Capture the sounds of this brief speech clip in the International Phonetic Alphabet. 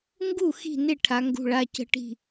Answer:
ŋ ɡ u˥˩ x i̤˥˩ n ɪ˥˩ ʈʰ a˩˧ ŋ ɡ ṳ˩˧˩ ɭ a˩˧˩ c ə̤˥˩ ʈ i̤˥˩

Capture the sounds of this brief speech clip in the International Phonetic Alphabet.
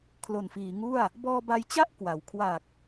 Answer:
kʰ l o˨˩ n f iː˩˦ ŋ u˥˩ a̯ | b ɔː˧ b a˧ j t͡ɕ a˥˩ ʔ k w a˩˦ w kʰ w a˨˩ k̚

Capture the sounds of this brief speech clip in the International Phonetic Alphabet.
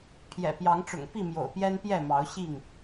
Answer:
pʰ j ɛ̰˨˩ p j ɑ˨˦ ŋ ʈ͡ʂ ʊ̰˨˩ ŋ p i˥˨ m j o̰˨˩ ʊ̯ p j ɛ˦ n p j ɛ˥˨ m ɑ˨˦ ʊ̯ ɕ i˥˨ ŋ

